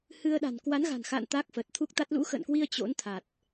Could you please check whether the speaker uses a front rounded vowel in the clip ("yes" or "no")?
no